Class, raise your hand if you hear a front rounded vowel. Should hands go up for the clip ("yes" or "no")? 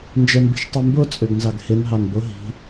yes